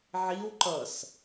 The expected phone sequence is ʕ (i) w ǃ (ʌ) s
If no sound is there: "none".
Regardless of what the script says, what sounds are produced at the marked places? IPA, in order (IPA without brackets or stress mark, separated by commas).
i, ʌ